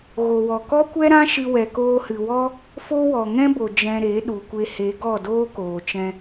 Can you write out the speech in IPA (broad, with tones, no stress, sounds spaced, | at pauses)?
ɣ o˨ w ɔ˨ k ɔ˦ kʷ ɛ˦ ɾ ã˦ ʃ ɨ˧ w ɛ˨ k oː˧ h ɨ˨ w ɔ˦ | f o˦ w ɔ˨ ŋ ɛ̃˦ b o˨ d͡ʒ ɛ̃˧ ɾ e˨˦ ɗ u˨ kʷ e˧ h e˨˦ ɡ ɔ˦˨ d oː˦ k oː˨ t͡ʃ ɛ̃˧